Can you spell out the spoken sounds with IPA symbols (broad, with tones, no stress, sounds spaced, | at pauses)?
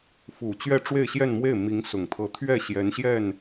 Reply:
f u˨˩ t͡ɕ ɥ ɛ˥˧ ʈ͡ʂ w e˥˧ ɪ̯ ɕ j ɛ˥˧ n m w e˥˩ ɪ̯ m i˧˥ ŋ s ʊ˨˩ ŋ t̪ʰ ɤ˧˥ t̪ʰ ɥ ɛ˥˩ ɕ j ɛ˧˥ n ɕ j ɛ˥˩ n